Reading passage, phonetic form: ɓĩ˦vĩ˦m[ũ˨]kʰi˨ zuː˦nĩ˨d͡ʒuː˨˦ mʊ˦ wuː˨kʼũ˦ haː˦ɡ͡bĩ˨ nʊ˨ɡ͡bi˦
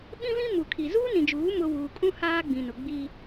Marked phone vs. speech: incorrect: u˨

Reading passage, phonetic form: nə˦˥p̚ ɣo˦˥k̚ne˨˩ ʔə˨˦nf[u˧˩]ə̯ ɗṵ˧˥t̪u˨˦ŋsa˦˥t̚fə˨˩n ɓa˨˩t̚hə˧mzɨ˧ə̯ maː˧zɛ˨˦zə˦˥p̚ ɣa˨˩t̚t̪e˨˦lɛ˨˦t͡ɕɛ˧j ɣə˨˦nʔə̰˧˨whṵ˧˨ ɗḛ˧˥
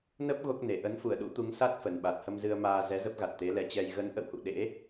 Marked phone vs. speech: correct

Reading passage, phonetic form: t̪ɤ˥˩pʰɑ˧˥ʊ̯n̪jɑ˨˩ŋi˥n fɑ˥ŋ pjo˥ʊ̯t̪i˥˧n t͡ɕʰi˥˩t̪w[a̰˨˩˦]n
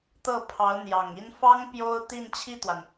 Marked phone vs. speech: incorrect: a˩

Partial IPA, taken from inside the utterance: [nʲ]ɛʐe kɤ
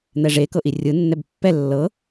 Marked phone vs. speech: incorrect: n̪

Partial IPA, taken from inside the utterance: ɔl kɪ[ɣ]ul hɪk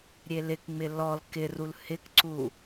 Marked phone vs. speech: incorrect: r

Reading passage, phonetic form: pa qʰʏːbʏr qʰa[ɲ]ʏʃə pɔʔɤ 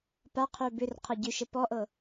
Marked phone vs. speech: incorrect: ɟ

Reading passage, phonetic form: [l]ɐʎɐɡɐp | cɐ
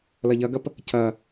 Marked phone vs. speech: correct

